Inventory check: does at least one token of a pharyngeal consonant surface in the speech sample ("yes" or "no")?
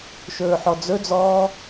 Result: yes